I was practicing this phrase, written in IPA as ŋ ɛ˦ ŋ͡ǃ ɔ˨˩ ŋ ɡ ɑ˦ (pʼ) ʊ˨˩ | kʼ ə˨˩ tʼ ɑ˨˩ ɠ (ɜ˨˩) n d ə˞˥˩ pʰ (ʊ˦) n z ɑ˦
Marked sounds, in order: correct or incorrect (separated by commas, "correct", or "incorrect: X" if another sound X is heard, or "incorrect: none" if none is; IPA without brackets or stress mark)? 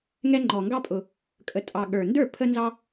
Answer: correct, incorrect: ə˞˨˩, incorrect: ə˦